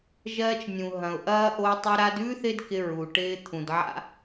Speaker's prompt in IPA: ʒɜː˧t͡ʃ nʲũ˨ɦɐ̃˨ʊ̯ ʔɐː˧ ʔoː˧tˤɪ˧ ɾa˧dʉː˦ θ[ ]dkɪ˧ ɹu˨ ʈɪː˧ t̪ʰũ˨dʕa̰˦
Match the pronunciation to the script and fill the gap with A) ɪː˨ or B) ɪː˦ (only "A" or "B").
B